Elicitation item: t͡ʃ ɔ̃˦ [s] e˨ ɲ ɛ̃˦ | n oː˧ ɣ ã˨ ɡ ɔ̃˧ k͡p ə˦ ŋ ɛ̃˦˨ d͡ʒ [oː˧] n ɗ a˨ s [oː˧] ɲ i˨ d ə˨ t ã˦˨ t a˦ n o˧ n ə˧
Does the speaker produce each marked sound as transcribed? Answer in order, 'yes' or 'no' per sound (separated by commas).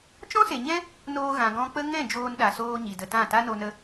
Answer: yes, yes, yes